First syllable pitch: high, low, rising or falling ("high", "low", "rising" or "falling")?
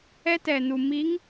high